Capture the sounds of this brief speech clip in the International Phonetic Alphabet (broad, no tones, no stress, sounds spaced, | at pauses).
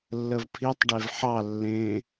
lː ə v pʰ i tˤ ɖ e v ħ ɑ lː ẽ